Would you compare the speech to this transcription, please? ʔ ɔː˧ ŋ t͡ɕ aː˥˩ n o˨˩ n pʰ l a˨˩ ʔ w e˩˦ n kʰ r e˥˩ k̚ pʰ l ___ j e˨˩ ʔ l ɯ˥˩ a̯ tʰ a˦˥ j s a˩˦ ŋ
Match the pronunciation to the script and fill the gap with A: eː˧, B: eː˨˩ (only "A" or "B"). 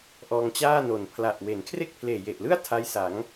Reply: B